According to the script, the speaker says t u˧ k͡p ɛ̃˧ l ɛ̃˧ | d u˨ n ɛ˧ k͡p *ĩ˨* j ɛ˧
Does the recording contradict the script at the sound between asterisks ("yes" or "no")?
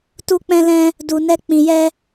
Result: no